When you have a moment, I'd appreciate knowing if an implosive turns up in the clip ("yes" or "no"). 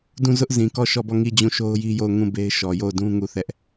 no